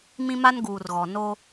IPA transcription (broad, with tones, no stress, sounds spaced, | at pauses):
m ĩ˦ m a˦ n ɡ uː˨ r ɣ ɔ˨ n o˦